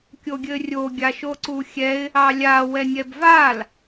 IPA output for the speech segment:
kʲ o ɡʲ ɘ rʲ o ɡʲ a ʃ o ǀ u xʲ ɛ ɪ̯ | ɑ lʲ a w ɛ nʲ ɛ b v a l

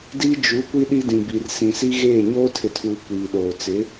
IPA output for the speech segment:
d iː˦ d͡ʒ u˨˦ kʷ i˦ ɗ i˦ d ĩ˨ b i˨ r s ĩ˨ s i˦ ɣ eː˦˨ ɲ oː˦ tʰ ɪ˨ tʰ uː˨ kʷ iː˨ ɗ oː˨ t͡s ɪ˨˦

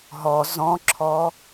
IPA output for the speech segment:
ɦ ɔ z ɔ̃ ǁʰ ɔ

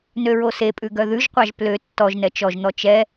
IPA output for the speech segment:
n ø ɹ o s e pʼ ʉ ɡ œ ð ʉ ʒ qʷ ɑ ʒ p l ø tː ɔ ʒ n ɛ t͡ʃ ɔ ʒ n̪ ɔ t͡ʃ ɛ

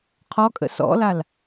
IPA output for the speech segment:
qʰ ɔ kʼ ə̰ s ɔ̰ l a l

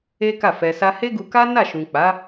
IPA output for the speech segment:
e˦ k a˦˨ f ɛ˧ s a˧ h e˦ ɡ u˧ k a˦ n a˦˨ ʃ ũ˨ k͡p a˨˦

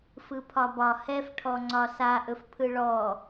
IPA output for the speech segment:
f ɯ pʰ ɒ b ɒ h ɛ f ʈʰ ɔ ŋ͡ǀ ɒ s a ʔ ɵ f pʰ ɯ ɭ ɔ

